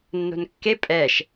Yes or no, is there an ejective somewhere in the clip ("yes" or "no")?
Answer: yes